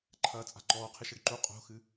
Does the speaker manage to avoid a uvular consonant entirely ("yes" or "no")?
no